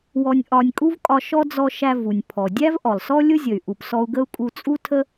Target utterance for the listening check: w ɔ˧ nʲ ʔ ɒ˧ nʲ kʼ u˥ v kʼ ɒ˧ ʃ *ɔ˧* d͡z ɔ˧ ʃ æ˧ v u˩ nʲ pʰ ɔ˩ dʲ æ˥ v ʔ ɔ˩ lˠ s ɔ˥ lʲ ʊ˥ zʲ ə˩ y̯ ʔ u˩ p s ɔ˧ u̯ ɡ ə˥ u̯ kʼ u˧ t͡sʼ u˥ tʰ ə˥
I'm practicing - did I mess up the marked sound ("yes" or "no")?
yes